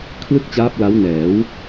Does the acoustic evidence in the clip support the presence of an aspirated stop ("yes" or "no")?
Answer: yes